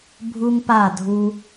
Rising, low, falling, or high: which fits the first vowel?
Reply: high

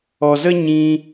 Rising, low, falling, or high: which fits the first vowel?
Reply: low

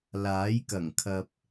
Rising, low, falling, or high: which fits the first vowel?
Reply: rising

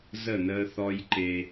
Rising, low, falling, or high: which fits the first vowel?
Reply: falling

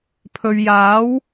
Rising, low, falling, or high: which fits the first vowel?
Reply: low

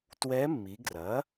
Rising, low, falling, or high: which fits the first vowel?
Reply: rising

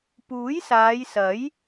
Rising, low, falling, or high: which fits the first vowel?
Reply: rising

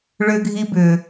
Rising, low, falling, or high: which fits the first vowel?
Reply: high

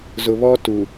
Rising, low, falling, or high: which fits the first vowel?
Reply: low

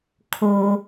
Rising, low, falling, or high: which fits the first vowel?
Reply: low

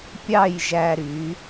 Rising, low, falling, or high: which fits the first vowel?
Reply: falling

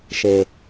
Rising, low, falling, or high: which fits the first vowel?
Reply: low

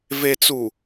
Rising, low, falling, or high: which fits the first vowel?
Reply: low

